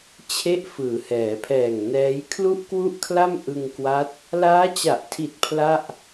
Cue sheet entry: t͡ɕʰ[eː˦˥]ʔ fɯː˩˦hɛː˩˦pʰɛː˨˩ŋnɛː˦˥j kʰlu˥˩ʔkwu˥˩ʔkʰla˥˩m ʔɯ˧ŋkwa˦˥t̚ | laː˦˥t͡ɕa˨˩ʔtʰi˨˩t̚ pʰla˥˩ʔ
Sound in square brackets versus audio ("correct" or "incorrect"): incorrect